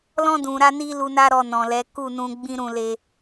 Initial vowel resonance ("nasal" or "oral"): nasal